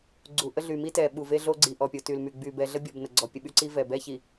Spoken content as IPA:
ɡ͡ǀ u˨ ʔ ə˦ ɮ y˨ m i˦ t ɛ˨ ɓ u˨ v e˦ ɮ o˦ ɡ͡ǀ i˨ ʔ ɔ˨ pʲ o˨ t y˨ l m y˨ ɡ͡b y˨ b ɛ˨ ɮ ə˦ bʲ ɔ˨ b n ə˨ ɡ͡ǀ ɔ˨ pʲ ə˨ ɓ y˦ ǀ i˦ v ɛ˨ b ɛ˦ ç i˨

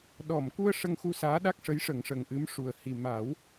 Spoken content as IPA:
ɗ ɔ˨˩˨ m k u˧ ə̯ ʂ ə˧ ŋ x u˧ s aː˧˥ ɗ a˦˥ k̚ ʂ ə˧˥ j ʂ ə˨˩˦ ŋ ʂ ə˨˩ ŋ ʔ ɨ˧˥ m ʂ u˨˩ ə̯ h i˨˩ m a˨˩˦ w

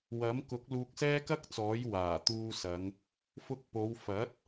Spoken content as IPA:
w ɐ˨˥ m k ʊ˨˥ k̚ l uː˧ k̚ s ɛː˥ k ɐ˥ k̚ t͡s ɔː˨˥ j w aː˨˩ t̪ uː˧ s ɐ˨˧ ŋ | f ʊ˧ k̚ p o˨˧ w f ɐ˨˥ t̚

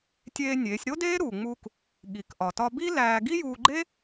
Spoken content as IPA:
tʲ eː˧ nʲ eː˩˧ sʲ ɾ o˥ d eː˥ ɾ u˩ ŋ͡m u˧ k | ɠ i˩˧ k ʔ ɒ˩ t ɒ˧ b i˥ l æː˧ ɡ i˥ j uː˧ ɡ͡ǃ e˥

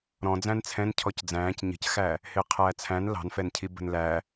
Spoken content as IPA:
ɾ ɔ̃ d͡z æ̃ n t͡sʰ ɛ̃ n cʰ ɔ c d͡z æ̃ː c ɲ ə̤ c x æ | h ɪː qʰ æː t͡sʰ æ̃ n l ɑ̤ n f ɛ n cʰ i b ə̤ n l æ

